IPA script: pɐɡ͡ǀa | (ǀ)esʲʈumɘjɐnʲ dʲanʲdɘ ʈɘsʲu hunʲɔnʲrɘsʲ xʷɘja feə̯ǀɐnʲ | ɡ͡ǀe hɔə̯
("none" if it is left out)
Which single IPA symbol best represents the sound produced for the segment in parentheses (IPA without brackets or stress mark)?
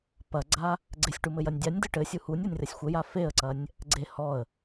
ɡ͡ǀ